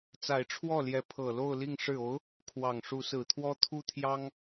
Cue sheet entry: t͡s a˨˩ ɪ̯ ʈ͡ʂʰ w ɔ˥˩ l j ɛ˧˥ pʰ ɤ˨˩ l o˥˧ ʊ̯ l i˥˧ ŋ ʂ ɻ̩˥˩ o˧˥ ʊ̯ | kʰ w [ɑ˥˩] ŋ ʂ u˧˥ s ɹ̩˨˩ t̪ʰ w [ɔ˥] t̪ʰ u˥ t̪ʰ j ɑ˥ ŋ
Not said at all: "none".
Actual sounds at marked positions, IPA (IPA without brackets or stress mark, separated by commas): ɑ˨˩, ɔ˥